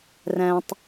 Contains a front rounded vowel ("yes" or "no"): no